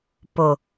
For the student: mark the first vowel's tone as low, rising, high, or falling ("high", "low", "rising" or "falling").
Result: low